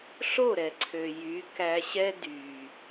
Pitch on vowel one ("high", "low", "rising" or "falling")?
falling